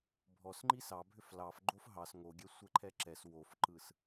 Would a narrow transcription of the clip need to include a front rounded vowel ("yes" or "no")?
yes